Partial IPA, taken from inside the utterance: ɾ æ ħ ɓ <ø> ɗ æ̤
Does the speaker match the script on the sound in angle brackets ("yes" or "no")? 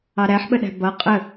no